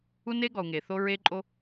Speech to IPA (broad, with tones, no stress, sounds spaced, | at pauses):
u˦ n e˦ ɡ ɔ˨ u̯ ŋ e˨ θ o˦ ɹ e˦ ǃʼ o˦